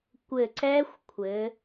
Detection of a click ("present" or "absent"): present